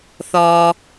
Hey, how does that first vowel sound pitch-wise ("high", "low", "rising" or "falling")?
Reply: low